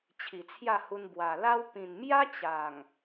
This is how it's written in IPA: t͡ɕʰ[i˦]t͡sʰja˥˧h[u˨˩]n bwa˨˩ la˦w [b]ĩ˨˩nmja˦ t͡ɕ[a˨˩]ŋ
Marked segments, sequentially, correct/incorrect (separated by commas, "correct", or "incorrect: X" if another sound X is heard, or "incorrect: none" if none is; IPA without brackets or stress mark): incorrect: i˨˩, incorrect: u˧, incorrect: p, correct